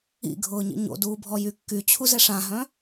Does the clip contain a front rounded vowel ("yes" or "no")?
yes